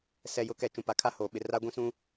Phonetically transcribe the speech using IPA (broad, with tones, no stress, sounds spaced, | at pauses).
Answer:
s ɛ˨ j ʊ˨ k ɛ˨ t͡ʃ ũ˨ p a˨ kʰ a˦ h oː˨ ɓ ɪ˨ r a˦ ɡʷ ĩ˦ s ũ˦